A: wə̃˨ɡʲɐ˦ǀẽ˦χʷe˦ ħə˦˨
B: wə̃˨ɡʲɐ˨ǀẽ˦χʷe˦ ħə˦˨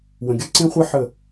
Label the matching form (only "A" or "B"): A